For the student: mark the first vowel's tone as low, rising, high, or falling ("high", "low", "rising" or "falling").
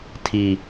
low